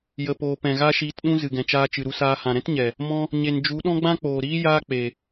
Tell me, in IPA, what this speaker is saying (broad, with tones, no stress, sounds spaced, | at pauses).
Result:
j ə˨ p oː˨ p ɛ̃˨ ɣ a˦ ʃ iː˧ t ɗ ũ˦ z ɨ˨ ɡ ɛ̃˨ t͡ʃ aː˧ t͡ʃ ɨ˨ ɾ u˧ s aː˧ h ã˨ ɾ ɛ̃˦ t ɲ ɛ˨ | m ɔ̃˧ | ɲ e˨ n d͡ʒ u˨˦ ɗ ɔ̃˦ ɡ͡b ã˦ k͡p oː˨ ɾ iː˦ j aː˦ k͡p e˨